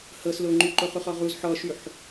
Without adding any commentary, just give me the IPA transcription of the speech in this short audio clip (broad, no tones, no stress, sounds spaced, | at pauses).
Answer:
h ɤ s l o ŋ͡ǃ y ǃ o χ u χ ɔ ʁ u z ħ ɔ ʃ y ħ